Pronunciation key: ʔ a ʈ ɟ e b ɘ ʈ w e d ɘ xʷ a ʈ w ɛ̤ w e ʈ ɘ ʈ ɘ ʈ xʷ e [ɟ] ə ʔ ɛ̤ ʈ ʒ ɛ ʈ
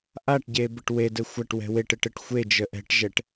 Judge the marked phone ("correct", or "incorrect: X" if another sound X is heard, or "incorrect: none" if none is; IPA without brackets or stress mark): incorrect: d͡ʒ